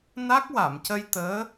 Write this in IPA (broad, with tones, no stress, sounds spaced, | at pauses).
n a˦˥ k̚ w a˨˩˨ m c ə˧ j t̪ əː˧˥